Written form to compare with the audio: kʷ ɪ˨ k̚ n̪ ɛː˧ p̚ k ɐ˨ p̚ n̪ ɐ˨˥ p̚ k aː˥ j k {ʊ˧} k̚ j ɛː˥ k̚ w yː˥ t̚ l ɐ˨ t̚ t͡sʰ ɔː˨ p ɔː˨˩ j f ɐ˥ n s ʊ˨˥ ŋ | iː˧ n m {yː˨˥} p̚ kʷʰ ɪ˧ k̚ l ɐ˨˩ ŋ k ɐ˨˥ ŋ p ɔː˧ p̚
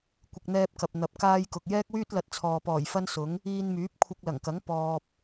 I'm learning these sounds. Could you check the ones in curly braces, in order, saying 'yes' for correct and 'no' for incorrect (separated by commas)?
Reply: no, yes